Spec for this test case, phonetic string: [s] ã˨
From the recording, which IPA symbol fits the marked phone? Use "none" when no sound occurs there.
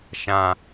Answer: ʃ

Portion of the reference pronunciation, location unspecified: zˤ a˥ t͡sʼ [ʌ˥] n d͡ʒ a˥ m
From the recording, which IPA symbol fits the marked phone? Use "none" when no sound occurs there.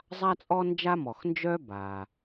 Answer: ɔ˥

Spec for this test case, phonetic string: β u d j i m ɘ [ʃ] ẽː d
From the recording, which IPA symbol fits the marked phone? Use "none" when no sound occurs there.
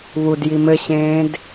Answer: ɕ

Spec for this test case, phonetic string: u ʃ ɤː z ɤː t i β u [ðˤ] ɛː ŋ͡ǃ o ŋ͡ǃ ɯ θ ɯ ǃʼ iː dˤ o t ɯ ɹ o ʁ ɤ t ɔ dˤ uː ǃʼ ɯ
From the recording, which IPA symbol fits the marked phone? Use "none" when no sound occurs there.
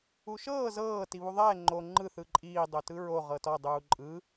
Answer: ðˤ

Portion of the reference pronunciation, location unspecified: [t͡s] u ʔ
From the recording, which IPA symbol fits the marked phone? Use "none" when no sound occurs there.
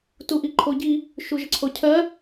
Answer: t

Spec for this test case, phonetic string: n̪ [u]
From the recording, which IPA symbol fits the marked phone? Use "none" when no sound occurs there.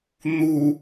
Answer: u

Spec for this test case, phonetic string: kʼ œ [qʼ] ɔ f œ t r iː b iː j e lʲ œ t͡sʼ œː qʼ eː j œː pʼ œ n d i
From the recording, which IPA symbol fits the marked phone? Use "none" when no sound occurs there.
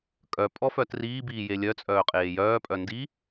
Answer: pʼ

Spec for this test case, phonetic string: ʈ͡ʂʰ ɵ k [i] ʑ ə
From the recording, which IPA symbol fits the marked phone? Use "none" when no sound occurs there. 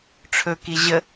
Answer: i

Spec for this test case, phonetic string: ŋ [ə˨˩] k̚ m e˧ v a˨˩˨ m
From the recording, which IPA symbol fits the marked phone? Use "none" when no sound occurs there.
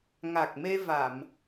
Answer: a˨˩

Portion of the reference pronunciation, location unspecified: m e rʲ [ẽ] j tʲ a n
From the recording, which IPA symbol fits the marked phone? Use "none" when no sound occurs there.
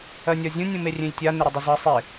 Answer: ẽ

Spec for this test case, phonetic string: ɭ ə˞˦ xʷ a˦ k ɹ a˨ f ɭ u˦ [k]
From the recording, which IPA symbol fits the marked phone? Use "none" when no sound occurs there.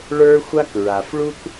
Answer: k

